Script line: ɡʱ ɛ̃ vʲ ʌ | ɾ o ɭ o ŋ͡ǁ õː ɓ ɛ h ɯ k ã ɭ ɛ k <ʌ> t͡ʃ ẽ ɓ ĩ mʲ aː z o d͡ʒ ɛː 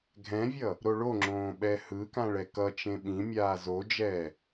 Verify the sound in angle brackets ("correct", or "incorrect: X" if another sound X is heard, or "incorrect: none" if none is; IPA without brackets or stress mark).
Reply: correct